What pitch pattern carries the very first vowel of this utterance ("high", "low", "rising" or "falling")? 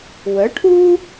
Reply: rising